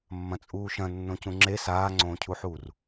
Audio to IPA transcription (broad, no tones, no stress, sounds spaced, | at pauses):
mː ɐ̃ t͡sʼ uː ʃ ɐ̃ nː õ c ũ ŋ͡ǁ e s aː ŋ͡ǀ õː cʰ u ħ uː r